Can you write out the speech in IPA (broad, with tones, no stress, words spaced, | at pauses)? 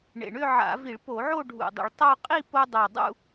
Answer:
ɳḛ˨˩ɳʏ˥˧ʕa̰˧˩˧vi˧˩˧ɭ po˧˩˧ʕo˥˧ɖʱṵ˨˩ dˤḭ˧˩˧ɭtˤo˥˧ qʼi˥˧po˧ dˤo˨˩dˤṵ˥˧